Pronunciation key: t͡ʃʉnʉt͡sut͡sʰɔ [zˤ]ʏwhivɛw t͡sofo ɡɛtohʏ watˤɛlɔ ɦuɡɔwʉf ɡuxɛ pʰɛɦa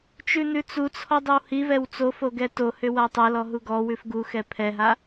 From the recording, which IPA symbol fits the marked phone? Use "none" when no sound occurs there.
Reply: dˤ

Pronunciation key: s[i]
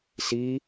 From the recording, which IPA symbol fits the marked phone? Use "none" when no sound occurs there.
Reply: i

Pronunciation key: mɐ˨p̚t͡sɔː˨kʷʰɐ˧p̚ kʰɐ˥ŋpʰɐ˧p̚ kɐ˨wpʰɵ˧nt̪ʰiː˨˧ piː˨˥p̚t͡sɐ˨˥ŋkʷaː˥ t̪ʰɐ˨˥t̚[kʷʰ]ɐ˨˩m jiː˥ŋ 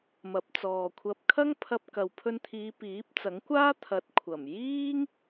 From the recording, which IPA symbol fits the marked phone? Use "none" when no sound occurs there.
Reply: kʷʰ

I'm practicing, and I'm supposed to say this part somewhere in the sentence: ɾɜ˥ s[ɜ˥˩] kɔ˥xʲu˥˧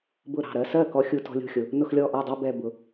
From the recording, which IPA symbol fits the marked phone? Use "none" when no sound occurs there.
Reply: ɜ˥˩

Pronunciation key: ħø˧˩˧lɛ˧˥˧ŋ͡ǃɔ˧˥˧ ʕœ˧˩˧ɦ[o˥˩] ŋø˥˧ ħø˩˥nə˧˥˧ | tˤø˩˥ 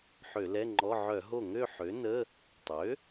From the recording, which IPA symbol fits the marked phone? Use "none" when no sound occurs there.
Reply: o˥˩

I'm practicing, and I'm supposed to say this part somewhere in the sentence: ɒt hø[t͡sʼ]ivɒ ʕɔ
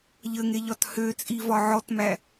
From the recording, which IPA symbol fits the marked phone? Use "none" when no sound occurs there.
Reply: t͡sʼ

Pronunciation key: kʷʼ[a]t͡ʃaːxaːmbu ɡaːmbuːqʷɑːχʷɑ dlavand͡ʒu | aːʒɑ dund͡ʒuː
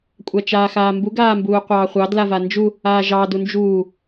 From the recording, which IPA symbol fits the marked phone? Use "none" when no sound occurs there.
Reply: a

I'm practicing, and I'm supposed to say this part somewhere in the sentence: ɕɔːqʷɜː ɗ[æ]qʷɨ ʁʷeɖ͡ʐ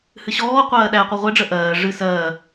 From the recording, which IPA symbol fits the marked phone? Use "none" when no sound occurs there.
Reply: æ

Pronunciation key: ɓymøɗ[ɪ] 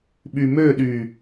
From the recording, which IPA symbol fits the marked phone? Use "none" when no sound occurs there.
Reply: y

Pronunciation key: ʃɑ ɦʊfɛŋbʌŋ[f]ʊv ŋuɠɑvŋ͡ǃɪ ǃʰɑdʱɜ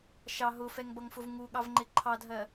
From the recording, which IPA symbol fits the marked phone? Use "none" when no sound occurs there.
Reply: f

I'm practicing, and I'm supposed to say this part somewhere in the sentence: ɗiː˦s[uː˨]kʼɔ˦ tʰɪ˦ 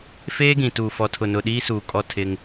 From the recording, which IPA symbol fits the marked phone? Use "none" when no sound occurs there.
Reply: uː˨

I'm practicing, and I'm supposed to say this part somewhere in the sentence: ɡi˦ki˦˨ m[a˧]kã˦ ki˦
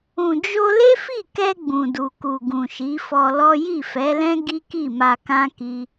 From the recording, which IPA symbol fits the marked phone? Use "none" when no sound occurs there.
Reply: a˧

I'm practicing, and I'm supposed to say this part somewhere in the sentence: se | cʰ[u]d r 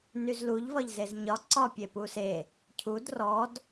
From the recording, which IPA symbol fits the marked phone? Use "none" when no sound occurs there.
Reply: u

